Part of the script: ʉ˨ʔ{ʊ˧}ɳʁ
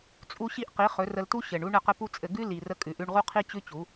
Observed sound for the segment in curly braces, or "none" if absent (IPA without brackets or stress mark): ʉ˧